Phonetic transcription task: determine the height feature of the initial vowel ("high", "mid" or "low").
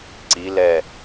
high